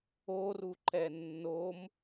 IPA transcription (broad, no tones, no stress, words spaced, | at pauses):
oruǃɛ nːom